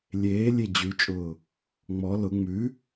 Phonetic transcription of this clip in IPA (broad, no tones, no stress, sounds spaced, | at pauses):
lʲ eː lʲ e d͡ʑ ʉ t͡ʃʼ ʊː | ŋ͡m ɔ l ʊ ŋ͡m ʉ